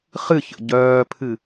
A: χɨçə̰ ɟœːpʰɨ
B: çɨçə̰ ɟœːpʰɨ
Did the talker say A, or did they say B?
A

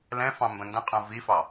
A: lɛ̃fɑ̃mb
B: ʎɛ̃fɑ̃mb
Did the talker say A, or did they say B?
A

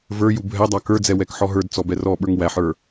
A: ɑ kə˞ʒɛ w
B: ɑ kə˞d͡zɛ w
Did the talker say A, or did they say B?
B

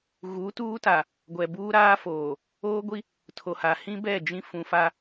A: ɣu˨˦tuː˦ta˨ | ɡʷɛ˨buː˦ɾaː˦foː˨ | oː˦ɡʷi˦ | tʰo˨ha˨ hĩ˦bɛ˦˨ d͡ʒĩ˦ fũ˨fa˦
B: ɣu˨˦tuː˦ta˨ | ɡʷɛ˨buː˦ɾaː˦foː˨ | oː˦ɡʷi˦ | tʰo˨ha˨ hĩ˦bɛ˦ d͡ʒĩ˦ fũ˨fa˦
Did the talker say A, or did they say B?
A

